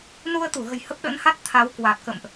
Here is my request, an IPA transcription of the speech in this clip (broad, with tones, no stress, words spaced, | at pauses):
nu˧ə̯t̪u˧˩ɣə̤˨˩j hə˦˥p̚ɗə̰˧˥nha˦˥t̚ t̪ʰa˨˦wkwa˨˩t̚kə̰˧˨mʔ